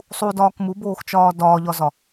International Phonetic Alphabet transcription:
sˤ u d ɒː k m u b oː x t͡ʃ ɒː d ɒː ʎ ɒ z ɒ

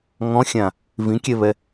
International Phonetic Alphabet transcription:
ŋ ɔ̃ xʲ ã | v ĩ kʲ ɛ β ɛ

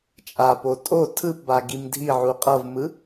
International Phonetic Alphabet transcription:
t͡ʃʼ a p o tʼ o tʰ ɯ p b a ɡ i m dʱ i ʕ u qʼ ʌ v m ɯ

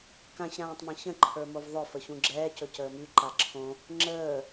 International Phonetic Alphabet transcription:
k ã ç ɾ ãː tˤ m ɛ̃ ç ə̃ ǃʰ ə˞ m o v ðˤ ɵ f ə ç ũ ɡ͡ǁ ɛː c ɵ c əː m y ǃ a ǁʰ õ | ŋ͡ǁ əː

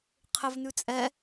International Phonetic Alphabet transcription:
qʰ ɘ v n ʉ t͡sʼ ɛ

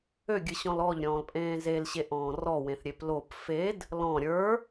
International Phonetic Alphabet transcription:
ø ɡʲ ɨ ɕ ɔ̃ l ɔ ʎ ɾʲ ɔ̃ː l pʼ ẽː z e l ɕ e ʔ ɔ̃ː r ɔ w ẽ θ ɾʲ e p l o p f e d | l ɔ̃ ɾʲ ə˞

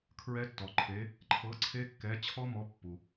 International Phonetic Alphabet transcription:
kʰ ɹ ɛ˦˥ tː ɔ˩ ǃʰ e˨˥ | ǃʰ ɤ˨˥ ǀʰ e˦˥ kː ɛ˨˥ t͡ɕʰ ɔ˦˥ m ɔ˨˥ pː u˩

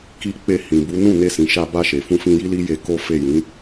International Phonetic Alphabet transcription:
k i˧ k͡p e˧ h ĩ˨ b u˨˦ n ũ˦˨ n e˧ s ĩ˨ ʃ a˧ b a˧ ʃ e˨ f ũ˧ f ĩ˧ j i˦ l i˦ j e˧ k o˦ f e˦˨ j ĩ˨˦

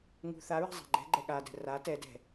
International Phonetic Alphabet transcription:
ŋ ṳ θ a ɹ a̤ zˤ a̤ ɡ͡ǃ ɛ̤ ɡ͡ǃ ɛ ɠ a d ɛ̤ r a t ɛ d ɛ̤

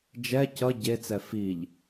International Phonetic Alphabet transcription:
d͡ʒ ɛ c ʌ ɟ e t͡s ɛ f i ʎ

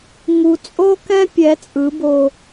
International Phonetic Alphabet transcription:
ŋ u˨ t͡sʼ o˦ k ɛ̃˦ pʲ ɛ˨˦ t͡sʼ ɯ˨˦ b o˧

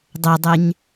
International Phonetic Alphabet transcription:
dˤ ɛ dˤ ɛ ɲ

